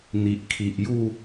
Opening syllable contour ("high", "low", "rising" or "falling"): low